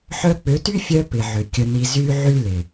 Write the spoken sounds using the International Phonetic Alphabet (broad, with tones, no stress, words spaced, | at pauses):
ħœ˦ k͡pʏ˨˦ty˦ fʲœ˦ pɪ˨ʕʏ˨ kʲə˧ni˧ zy˦ ʕy˦lɪ˨